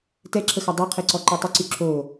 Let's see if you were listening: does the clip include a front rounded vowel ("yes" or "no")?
yes